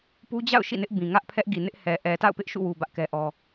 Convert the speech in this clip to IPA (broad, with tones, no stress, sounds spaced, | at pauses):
p u˦ d͡ʑ a̰˦˨ ʊ̯ ʃ ḭ˦˨ n ɪ˦ ʔ b ĩ˨ ŋ ä˦ ʔ pʰ ɛ˦ ʔ ɡ i˨ n ɪ˦ ʔ h ɛ˨ ʔ ɛ˨ t a̰˦˨ ʊ̯ p ɪ˦ ʔ ʃ ṵ˦˨ w u˨ b ä˦ ʔ k ɛ˦ ʔ ɔ˦